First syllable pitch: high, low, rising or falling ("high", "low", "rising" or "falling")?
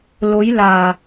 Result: rising